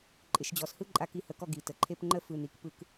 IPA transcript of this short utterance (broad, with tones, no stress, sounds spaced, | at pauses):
ǃʼ ɪ˨ ʃ d͡ʑ ɔ˨ s h ɯ˦ ǃʼ a˧ k i˨˦ h ə˨ k ɔ˦˨ ɡ i˨ t ə˨ ǃʰ e˧ p ŋ͡ǃ ə˦ f ɯ˨ n i˨ k p ɯ˧ k